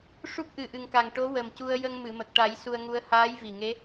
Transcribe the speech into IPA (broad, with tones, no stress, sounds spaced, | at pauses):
ʂ u˦˥ k̚ ʔ ɨ˨˩ ʔ ɨ˨˩ ŋ k a˨˩ ŋ ʈ o˧˥ w ə˨˩ m c u˧ ə̯ j ə˧ ŋ m ɨ˨˩˨ m ə˨˩ k̚ ʈ a˨˩˦ j s u˧ ə̯ ŋ u˧˥ ə̯ h aː˧˥ j v i˨˩ ŋ e˧˥